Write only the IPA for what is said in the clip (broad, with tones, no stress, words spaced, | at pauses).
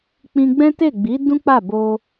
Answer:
k͡pĩ˧ɡ͡bɛ̃˦te˦˨ɡ͡bi˨˦ dũ˦k͡pa˦˨ bo˧